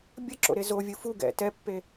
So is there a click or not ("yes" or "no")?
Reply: yes